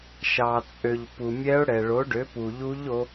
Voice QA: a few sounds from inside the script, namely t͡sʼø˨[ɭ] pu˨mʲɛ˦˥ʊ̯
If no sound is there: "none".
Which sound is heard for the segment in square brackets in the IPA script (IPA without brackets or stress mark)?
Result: ʎ